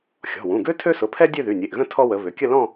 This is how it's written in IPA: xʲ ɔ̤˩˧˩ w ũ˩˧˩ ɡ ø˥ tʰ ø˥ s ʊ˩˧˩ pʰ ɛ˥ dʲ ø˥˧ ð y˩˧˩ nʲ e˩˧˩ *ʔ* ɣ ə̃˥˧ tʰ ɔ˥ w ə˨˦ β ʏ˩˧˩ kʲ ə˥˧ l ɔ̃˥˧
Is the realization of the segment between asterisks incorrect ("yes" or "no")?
no